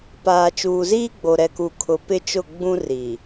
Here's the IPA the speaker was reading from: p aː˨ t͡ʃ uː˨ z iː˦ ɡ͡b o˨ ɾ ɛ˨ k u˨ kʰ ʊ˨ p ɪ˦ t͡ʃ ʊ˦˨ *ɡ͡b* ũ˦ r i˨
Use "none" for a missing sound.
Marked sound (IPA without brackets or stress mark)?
ɡ͡b